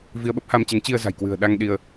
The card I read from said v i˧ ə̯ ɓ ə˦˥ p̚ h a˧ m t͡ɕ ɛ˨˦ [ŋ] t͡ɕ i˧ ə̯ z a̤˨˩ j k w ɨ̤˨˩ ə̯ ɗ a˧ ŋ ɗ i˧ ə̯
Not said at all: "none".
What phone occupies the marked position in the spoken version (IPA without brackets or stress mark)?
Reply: ŋ